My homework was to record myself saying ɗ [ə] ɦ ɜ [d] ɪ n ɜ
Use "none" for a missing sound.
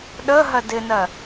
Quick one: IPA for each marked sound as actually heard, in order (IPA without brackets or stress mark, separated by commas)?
ə, d